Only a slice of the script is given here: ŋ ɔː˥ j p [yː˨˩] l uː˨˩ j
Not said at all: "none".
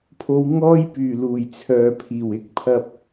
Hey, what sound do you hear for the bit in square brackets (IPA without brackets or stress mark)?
yː˨˩